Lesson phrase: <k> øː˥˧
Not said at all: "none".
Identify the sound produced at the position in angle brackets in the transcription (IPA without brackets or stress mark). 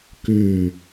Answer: k